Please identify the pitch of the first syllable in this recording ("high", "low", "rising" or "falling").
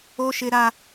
high